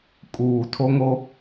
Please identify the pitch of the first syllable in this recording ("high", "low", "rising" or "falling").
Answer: low